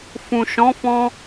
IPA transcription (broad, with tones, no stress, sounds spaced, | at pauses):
f ũ˨ ʃ ɔ̃˨˦ f ɔ̃˧